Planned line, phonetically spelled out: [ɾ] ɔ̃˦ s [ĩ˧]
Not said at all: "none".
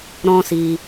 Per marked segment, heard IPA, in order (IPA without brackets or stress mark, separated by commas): ɾ, i˧